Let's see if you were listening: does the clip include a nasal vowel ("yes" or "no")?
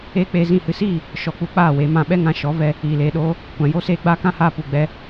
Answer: yes